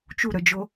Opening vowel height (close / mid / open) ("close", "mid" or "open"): close